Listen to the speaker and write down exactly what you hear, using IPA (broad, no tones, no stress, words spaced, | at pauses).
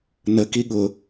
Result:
nə kiɠʊ